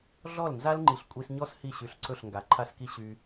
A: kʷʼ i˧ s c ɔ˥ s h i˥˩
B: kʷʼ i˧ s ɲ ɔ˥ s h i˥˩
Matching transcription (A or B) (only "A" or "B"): B